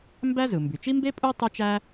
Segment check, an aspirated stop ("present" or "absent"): absent